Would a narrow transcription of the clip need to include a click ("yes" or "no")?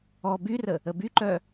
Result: yes